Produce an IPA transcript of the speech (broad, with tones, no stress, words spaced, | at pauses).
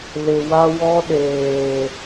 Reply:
lɪ˨wa˦ wɔ˦ɗeː˨